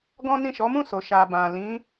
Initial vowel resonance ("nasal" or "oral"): nasal